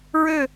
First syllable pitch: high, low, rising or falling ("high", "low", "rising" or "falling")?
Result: falling